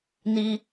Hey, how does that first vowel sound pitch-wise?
high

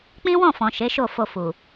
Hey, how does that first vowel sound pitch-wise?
high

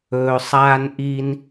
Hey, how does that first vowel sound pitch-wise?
low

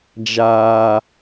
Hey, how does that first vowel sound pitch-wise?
low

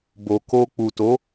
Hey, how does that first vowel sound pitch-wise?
low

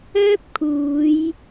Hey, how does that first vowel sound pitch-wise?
high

